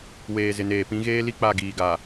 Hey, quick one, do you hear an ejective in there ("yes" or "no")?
no